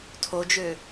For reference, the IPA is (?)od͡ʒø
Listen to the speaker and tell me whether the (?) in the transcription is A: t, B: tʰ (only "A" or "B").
B